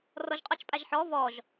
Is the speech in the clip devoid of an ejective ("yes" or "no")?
no